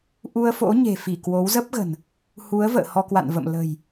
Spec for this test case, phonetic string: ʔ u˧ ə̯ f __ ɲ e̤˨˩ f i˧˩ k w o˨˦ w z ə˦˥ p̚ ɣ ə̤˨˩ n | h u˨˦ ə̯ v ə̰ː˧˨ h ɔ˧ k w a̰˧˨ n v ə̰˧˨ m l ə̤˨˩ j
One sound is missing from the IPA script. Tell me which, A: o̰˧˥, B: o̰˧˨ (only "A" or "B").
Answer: A